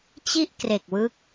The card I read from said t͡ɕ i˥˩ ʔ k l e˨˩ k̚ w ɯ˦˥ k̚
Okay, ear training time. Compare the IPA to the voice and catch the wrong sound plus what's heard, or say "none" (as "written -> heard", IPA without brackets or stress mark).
l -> r